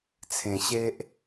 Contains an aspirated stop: yes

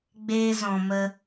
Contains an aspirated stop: no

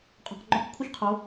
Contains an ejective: yes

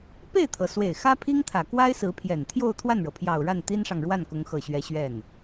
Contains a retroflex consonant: yes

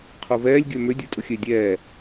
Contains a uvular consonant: yes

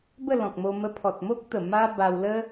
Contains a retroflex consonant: no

